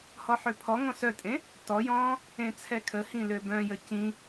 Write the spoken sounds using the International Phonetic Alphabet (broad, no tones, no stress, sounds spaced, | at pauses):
h ɔ ħ ø pʰ ɔ ŋ ɔ̃ s œ tʼ ẽ | t ɔ j ɔ̃ː | ẽ t͡sʰ ɛ kʰ ə h ĩ l ø b œ̃ j ə c ĩ